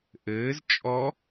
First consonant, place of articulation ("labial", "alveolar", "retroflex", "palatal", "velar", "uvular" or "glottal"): glottal